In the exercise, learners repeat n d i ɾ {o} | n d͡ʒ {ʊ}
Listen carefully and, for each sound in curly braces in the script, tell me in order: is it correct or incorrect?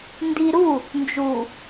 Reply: incorrect, incorrect

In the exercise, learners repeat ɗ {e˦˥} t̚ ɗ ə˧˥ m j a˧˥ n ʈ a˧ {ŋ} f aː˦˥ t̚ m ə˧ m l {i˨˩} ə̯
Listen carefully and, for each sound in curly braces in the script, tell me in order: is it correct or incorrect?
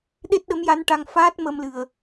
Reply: correct, correct, incorrect

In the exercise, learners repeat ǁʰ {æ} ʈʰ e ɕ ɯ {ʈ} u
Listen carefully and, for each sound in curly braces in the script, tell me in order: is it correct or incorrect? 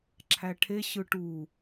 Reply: correct, correct

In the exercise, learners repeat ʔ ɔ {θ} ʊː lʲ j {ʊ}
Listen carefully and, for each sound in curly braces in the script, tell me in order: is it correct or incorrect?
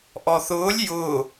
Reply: correct, correct

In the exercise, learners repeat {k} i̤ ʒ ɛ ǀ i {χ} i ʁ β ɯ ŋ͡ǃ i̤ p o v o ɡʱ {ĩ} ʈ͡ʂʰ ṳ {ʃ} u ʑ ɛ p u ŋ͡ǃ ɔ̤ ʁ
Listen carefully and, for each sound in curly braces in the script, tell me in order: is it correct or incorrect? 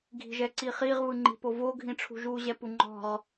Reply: incorrect, correct, correct, incorrect

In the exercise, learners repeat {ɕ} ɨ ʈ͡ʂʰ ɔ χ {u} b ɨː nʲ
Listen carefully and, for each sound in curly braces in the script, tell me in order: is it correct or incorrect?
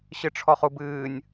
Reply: correct, correct

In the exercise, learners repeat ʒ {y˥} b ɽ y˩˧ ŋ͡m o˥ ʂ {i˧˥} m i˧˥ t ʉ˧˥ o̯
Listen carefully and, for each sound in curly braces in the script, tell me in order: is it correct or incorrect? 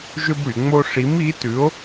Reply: incorrect, correct

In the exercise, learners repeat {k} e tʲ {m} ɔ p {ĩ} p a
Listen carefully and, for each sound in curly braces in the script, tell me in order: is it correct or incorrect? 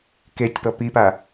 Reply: correct, incorrect, incorrect

